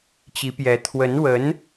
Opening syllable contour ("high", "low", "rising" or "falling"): rising